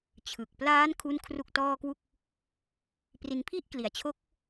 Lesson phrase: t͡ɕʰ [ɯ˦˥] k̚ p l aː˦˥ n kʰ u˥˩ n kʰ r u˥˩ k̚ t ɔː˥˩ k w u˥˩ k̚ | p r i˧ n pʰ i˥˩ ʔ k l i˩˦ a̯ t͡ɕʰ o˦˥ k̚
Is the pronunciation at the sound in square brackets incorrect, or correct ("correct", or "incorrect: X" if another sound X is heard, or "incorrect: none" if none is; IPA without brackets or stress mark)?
incorrect: ɯ˨˩